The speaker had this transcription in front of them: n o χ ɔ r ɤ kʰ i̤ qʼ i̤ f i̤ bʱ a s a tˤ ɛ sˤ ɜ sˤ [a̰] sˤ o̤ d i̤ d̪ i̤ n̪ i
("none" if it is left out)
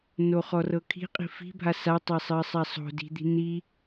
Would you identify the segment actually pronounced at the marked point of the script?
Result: a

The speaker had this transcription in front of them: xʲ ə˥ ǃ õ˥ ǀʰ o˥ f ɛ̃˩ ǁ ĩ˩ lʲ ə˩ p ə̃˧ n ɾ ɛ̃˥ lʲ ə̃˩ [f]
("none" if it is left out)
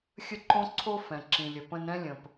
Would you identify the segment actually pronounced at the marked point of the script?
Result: p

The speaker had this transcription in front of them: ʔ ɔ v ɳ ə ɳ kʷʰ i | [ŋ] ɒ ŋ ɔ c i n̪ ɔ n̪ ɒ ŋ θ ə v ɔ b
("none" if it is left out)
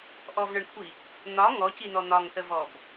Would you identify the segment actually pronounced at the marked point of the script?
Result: n̪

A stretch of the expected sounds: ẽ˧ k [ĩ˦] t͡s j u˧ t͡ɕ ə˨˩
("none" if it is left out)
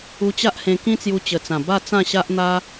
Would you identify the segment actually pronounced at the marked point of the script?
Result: ĩ˦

